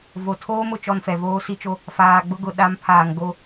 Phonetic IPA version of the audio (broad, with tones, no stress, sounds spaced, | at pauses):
v o˨ tʰ oː˦ m ʊ˨ t͡ʃ ɔ˦ n f ɛ˨ v oː˦ s i˦ t͡ʃ o˦ | f aː˨ ɡ͡b ʊ˦ ɡ ʊ˨ ɗ a˨˦ m pʰ aː˨ ŋ ɡ o˦